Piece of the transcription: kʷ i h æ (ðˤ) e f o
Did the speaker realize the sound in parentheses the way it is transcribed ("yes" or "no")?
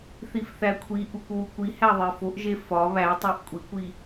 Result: yes